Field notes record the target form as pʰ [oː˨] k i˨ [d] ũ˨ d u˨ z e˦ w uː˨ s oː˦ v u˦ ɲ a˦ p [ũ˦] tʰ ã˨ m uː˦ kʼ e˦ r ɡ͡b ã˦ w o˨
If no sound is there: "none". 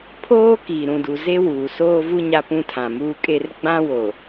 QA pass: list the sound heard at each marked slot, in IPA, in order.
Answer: oː˦, ɾ, ũ˦

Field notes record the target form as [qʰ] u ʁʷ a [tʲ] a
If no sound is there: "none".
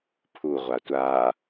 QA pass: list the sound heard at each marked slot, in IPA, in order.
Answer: pʰ, tʷ

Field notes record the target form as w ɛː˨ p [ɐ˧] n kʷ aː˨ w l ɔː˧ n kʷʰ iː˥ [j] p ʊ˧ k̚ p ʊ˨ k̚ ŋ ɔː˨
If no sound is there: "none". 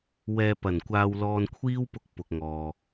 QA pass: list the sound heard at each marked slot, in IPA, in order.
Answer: ɐ˨˩, w

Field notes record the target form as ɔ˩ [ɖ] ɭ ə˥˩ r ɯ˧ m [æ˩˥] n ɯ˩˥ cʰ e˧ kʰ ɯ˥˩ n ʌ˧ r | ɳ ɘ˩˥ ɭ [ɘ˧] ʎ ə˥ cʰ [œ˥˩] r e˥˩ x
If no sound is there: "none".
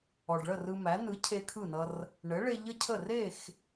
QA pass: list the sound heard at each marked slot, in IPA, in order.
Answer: ɖ, æ˩˥, e˧, ə˥˩

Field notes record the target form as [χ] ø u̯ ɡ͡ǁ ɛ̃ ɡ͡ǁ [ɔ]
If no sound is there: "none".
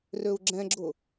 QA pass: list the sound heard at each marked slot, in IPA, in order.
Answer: r, ʊ

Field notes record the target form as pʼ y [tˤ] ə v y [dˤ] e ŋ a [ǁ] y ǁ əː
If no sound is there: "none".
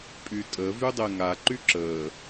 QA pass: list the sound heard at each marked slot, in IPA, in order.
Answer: tʼ, dˤ, ǃ

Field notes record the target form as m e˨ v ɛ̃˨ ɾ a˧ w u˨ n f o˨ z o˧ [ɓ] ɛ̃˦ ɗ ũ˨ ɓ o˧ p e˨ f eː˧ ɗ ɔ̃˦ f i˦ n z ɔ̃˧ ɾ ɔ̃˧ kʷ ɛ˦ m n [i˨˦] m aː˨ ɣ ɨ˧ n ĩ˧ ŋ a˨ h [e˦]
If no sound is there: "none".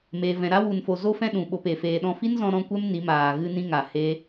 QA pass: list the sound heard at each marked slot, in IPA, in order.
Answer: f, i˨˦, e˦

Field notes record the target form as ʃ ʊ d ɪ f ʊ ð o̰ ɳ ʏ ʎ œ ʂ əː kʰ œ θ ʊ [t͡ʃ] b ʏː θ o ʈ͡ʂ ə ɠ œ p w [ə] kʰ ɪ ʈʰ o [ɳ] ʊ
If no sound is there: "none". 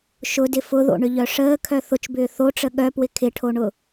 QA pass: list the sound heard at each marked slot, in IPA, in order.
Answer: t͡ʃ, ɪ, ɳ

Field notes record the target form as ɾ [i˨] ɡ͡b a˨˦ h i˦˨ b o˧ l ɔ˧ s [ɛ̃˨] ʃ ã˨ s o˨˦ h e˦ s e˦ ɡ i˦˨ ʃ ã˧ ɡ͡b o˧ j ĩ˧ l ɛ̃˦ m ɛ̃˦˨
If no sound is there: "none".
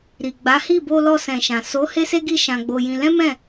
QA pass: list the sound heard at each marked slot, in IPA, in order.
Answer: i˨, ɛ̃˨

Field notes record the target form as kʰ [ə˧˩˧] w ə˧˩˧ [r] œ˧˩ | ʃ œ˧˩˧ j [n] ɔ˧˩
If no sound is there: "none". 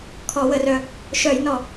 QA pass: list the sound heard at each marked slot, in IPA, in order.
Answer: ɔ˧˩˧, r, n

